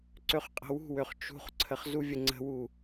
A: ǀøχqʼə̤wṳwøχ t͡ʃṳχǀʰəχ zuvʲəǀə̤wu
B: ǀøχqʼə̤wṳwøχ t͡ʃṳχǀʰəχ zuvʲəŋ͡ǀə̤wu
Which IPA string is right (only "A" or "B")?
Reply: B